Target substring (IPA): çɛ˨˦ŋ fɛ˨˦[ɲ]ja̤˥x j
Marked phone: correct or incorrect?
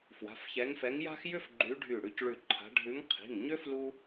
incorrect